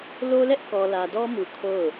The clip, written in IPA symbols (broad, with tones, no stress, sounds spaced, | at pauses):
l o˦ l ɛ˦ ʔ k ɔ˨ l ä˨ d ɔ˦ m u˨ kʰ o˦˨ ʊ̯